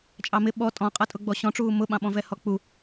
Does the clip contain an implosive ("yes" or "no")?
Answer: yes